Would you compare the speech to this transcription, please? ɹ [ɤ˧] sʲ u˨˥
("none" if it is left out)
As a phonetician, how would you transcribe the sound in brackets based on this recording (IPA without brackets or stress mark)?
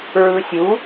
ɯ˧